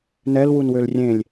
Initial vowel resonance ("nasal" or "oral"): oral